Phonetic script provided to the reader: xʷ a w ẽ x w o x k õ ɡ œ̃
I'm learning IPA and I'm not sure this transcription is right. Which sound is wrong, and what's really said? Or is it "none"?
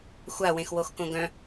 none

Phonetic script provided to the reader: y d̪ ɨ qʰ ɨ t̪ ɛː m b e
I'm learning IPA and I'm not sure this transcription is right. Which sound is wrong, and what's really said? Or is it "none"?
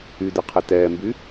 e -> y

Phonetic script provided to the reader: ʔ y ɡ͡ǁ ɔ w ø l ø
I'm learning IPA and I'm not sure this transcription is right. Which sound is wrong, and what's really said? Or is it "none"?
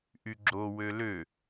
ɔ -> o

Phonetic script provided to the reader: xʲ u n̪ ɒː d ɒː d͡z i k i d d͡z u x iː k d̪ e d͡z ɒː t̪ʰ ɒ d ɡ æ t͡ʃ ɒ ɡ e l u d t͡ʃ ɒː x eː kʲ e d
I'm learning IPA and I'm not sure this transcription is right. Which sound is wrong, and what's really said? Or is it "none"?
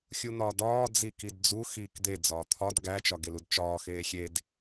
kʲ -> xʲ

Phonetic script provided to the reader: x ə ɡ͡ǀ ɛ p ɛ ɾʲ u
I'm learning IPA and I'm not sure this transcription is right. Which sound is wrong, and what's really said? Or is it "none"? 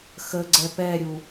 none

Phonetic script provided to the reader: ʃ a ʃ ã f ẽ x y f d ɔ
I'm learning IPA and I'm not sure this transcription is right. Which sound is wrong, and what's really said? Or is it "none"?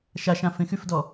none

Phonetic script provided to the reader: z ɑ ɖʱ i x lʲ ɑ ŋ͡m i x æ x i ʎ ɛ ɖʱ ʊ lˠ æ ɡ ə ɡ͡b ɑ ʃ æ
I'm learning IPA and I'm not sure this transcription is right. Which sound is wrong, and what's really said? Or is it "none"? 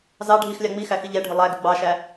none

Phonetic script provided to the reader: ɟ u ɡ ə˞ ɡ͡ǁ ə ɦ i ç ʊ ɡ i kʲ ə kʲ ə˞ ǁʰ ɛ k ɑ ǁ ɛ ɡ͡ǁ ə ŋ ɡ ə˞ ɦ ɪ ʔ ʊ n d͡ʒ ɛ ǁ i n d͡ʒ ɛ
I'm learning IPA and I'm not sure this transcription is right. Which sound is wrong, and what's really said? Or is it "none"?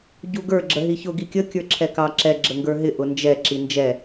none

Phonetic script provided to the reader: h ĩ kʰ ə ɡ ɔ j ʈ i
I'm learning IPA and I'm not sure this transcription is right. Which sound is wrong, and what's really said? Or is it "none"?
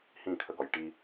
none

